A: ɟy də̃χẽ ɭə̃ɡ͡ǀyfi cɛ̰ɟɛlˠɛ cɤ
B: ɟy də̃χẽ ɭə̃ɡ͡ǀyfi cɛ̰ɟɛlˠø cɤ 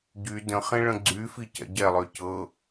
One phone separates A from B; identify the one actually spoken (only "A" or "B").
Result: B